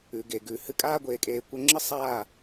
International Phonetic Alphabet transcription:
ʉ˨ ɡ e˨ ɡ ʉ˨ h ɨ˧ kʼ aː˦ ɡʷ eː˧ kʼ eː˧ kʷ ɐ˦ ŋ͡ǁ ɨ˦ sˤ aː˦˨

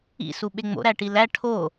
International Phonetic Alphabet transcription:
ḭ s u ɓ e ŋ͡m o̰ ɾ æ ʈ i l æ ʈʰ o

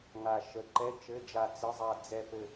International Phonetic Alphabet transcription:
ŋ a˦˨ ʃ ə˧˥˧ ǃ ɛ˧˥˧ t͡ʃ ɘ˧˥˧ d͡ʒ a˦˨ t͡s ə˧˥˧ zˤ a˦˨ d͡z ɛ˦˨ p ɘ˦˨

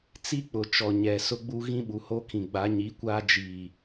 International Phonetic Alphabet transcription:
t͡s i˦ k͡p ʊ˨ t͡ʃ ɔ˨ ɲ ɛ˨ s ʊ˦ ɡ͡b u˦ ɣ ĩ˦ ɓ u˨ h o˦ kʰ ĩ˨ ɡ͡b a˨˦ ɲ i˨˦ kʷ aː˦ d͡ʒ iː˨

